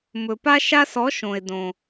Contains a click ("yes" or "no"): no